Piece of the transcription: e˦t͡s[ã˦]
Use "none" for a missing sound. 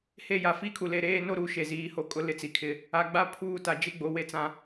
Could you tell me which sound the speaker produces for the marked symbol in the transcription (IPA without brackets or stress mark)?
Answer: ã˦